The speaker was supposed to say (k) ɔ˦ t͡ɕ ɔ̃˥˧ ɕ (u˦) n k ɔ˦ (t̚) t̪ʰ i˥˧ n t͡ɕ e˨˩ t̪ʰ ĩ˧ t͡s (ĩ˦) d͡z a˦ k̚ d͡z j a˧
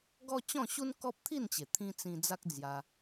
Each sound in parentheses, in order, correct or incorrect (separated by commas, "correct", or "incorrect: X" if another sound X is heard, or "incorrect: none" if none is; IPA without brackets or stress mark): incorrect: ɡ, correct, incorrect: p̚, incorrect: ĩ˧